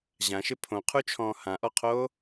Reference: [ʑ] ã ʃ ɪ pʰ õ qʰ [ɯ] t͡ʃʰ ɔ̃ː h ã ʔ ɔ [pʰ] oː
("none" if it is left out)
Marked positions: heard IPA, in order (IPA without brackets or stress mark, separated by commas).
ʑ, u, qʰ